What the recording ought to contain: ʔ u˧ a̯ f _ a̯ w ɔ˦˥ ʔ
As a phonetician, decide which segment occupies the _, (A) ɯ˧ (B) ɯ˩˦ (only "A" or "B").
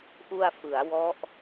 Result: B